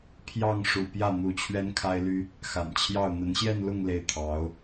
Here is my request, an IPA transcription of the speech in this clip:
pʰjɑ˥˩ŋʂṵ˨˩ pjä˥˩n̪u˧˥ t͡ɕʰɥɛ˥nkʰa˥ɪ̯ly˥ | xa̰˨˩nt͡ɕʰjɑ˥˩ʊ̯ n̪ə˧˥nɕjɛ˥˧nlʊ˥˧ŋ le˥˩ɪ̯t̪ʰɑ˧˥ʊ̯

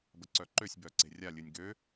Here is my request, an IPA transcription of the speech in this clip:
bəǀœǃøsʲ bœǀe̤rʲa lʲɨnʲɡø

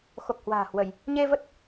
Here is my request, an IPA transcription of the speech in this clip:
xo˨˩k̚ hwa̤ː˨˩hwə˧˩˨j | ɲe˧ və˦˥t̚

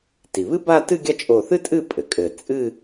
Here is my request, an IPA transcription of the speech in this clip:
ti˩βɨ˥ba˥˧ tɨ˥˧ɡʲɐ˥˩ t͡ʃʼo˧˩ θɨ˥tʼɨ˥˩ pʼɘ˩kʼɘ˧˩ t͡sʼɨ˥˧

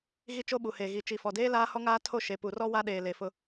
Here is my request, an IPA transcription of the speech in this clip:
ɣi˦t͡ʃo˦ɓu˨ he˨ɣi˨ t͡ʃi˨fɔ˨deː˦ laː˦hɔ˦ŋaː˦tʰo˦˨ ʃe˨pu˨rɔ˦ wa˦ɗeː˨le˨ fʊ˦

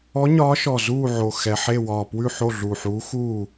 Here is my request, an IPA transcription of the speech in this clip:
ɔ˧˥ɲɒː˧˥ʃɔ˧˩ zuː˥˨ʕo˧˩ xɛ˧˩ħe˥˨wɒː˧˩ pwʉ˥˨ħo˥˨ɮu˧˩ħuː˧˥ xuː˥˨

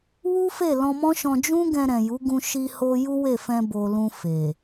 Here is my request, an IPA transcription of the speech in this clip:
wu˦fe˦˨ lɔ̃˧mɔ̃˦ʃɔ̃˧ d͡ʒũ˦ɡɛ̃˧ ɾɛ̃˨ju˨˦ɡũ˧ ʃi˧ho˧ ju˦we˦˨fɛ̃˧ bo˨ lũ˧fe˨

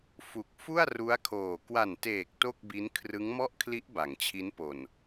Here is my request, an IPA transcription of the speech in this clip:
fu˨˩k̚ fu˥˩a̯ru˦˥a̯kʰoː˨˩ kwa˨˩nteː˨˩k̚ to˥˩k̚bi˦˥n kʰrɯ˦˥ŋmɔ˥˩ʔkʰli˦˥ʔ ba˩˦ŋt͡ɕʰi˦˥npo˨˩n

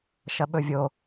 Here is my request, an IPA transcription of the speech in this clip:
ʃɐɓɵvʲo

